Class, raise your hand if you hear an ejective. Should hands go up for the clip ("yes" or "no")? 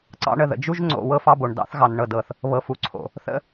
no